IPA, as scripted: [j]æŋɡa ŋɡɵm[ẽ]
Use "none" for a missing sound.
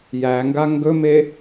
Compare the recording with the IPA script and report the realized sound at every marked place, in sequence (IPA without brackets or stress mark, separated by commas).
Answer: j, e